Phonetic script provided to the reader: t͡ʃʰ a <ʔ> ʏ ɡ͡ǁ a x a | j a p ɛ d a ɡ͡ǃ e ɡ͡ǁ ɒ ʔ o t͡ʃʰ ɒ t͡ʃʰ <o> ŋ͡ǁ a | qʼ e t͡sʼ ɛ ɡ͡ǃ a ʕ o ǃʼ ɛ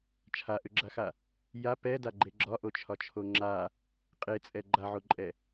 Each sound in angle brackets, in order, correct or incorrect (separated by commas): correct, correct